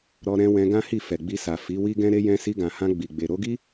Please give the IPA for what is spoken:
ɾ ɔ˧ ɾ ɛ̃˧ w ɛ̃˧ ɡ ã˦ h i˦˨ f ɛ˨ ɡ͡b i˧ s a˨ f i˨˦ w i˦ ɡ ɛ̃˦ ɾ e˧ j ɛ̃˧ s i˧ ɡ ã˨ h ã˧ ɡ͡b i˨ ɡ͡b e˨ ɾ o˧ ɡ i˦

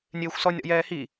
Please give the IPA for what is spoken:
nʲ eː xʷ s ɔ nʲ ɾ ɔ̰ j ɛː h i

